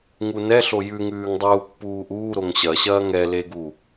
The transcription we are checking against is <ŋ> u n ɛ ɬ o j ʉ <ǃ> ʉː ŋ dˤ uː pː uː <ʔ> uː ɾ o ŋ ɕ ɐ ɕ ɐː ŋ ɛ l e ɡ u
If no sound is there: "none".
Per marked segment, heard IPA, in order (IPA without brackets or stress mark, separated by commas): ŋ, ŋ, ʔ